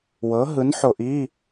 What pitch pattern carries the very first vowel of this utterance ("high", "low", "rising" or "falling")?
rising